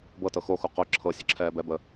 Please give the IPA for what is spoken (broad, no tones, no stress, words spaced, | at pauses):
bɤtɤ xoxu qʊ ǁʰɤ sʲəǁʰɛːbɛbə